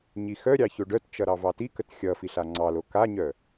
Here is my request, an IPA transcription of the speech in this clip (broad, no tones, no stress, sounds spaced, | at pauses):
ɲ i x œ ɾʲ ɑ ç o ɖ œ t t͡ʃ ʌ ɾ ɑ v ɑ t i k ə t xʲ ʌ f i ɬ a ŋ͡ǀ ɑ l o k a ɲ œ